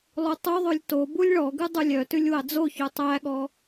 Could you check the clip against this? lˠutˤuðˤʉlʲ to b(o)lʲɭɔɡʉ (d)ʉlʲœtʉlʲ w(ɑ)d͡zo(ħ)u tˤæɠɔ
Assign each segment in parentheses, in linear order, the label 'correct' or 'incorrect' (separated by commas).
incorrect, incorrect, correct, incorrect